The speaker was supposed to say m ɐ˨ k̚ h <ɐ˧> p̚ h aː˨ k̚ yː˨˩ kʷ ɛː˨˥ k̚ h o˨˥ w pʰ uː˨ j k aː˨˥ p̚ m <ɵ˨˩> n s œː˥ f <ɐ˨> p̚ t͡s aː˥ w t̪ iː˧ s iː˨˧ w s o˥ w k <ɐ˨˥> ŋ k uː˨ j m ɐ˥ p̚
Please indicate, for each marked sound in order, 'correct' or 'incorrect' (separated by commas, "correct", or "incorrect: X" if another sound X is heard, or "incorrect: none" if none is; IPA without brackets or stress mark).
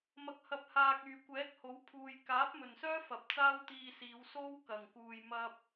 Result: incorrect: ɐ˨, correct, correct, incorrect: ɐ˨˩